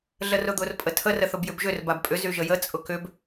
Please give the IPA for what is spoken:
ɮ ə r ʊ d̪ ʊ r pʼ ə tʰ ə r ə θ ʊ b j ʏ b ʒ ʏ r b a b pʼ ʏ z y ʒ ə j ə t͡sʼ ʊ k ʏ b

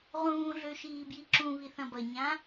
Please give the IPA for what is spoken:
ʁ ũː ɮ ø ʃ iː b j i ǁ ũ β i θ ɐ̃ b ɐ ɲ ã

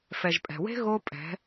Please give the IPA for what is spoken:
f ɛ˨ ʒ pʼ ɛ̤˨ w e̤˦ ɣ o˦ pʼ ɛ̤˨˦

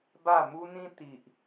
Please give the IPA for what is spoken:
b a˥˧ m u˦ n̪ ĩ˦ t̪ i˨ ʔ

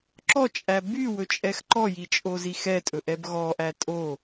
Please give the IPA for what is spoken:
ǁ ɔ t͡ʃʼ æ b y w ɵ t͡ʃʼ ɛ x ǃ ɔ j i t͡ʃʼ o z i x ɛ tʼ ɵ ʔ ɛ b ɣ ɔ ʔ æ tʼ o

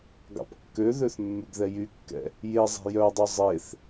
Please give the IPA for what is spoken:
ɡ ɑ̰ p kː ø ð ø θ mː y ɡ ð ɛ j y kː ɛ̰ | j e zˤ e̤ j œ dˤ ø zˤ e θ

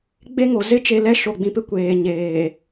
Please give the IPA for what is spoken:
ɡ͡b e˦ ŋ o˨ z ɪ˦ t͡ʃ e˨ l ɛ˦ ʃ o˨ ɡ͡b ĩ˨ p ɪ˦ kʷ eː˨ ɲ eː˨

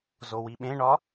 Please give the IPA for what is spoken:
z o w i ɓ ẽ ɳ ɒ

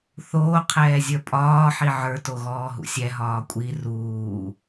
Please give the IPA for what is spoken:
θ oː qʰ ɛː zʲ ə˞ pʼ ɒː ħ i ʕ ə˞ t o ɣ ɔː ɦ ṵ sʲ ɛ ɦ ɒː kʷʼ i r uː

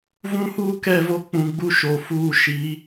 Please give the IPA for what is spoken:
v ũ˦ h uː˦ k ɛ˦˨ v o˦ k͡p ũ˨ ɡ͡b u˦ ʃ o˨ f uː˦˨ ʃ i˨˦

